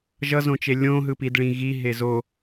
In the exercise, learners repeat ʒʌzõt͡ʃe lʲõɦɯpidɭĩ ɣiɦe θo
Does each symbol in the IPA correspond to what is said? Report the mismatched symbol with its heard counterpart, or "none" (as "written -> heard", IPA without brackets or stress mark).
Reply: θ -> z